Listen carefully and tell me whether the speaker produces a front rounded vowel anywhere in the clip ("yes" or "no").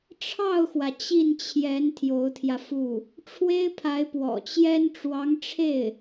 no